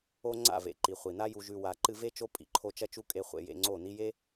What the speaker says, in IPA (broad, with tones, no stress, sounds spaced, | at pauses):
o˦ ŋ͡ǀ a̰˦˨ v ḛ˨ ǃ i˨ χʷ i˨ n a˦ j u˧ ʒ ʉ˧ w a˨ ǃ ɨ˧ v e˦ t͡ʃ o˦ pʼ ḭ˨ ǃʰ o˧ t͡ʃ ɐ˦ t͡ʃ u˦ kʼ e˧ χʷ ḛ˧ j ḛ˧ ŋ͡ǀ o˦˨ n i˧ j e˦